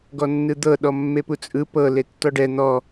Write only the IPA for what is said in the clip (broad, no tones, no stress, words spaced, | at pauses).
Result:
ɡɔnːɯd̪ɤ ɗɔmːeput͡sʼɯ pɤ letːɔɖɛ n̪ɔ